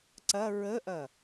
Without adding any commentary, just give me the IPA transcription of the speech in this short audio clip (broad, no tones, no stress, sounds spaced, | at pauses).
ǀ ɐ ɹ ə ʔ ɐ